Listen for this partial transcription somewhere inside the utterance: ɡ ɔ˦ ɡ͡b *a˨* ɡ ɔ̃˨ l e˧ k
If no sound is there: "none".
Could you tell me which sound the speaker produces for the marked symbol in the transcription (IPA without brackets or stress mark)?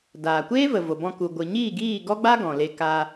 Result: a˦